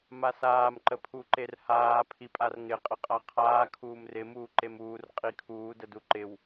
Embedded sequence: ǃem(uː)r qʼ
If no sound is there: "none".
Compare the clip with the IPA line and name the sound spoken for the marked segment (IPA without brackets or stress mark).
uː